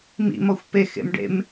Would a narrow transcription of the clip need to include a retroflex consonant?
yes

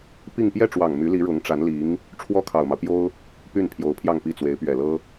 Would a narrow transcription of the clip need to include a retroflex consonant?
yes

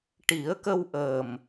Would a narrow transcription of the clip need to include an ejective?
no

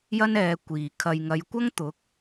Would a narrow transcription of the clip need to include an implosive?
no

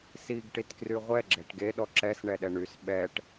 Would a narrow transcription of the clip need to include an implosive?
yes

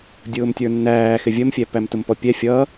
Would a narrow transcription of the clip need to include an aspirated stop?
no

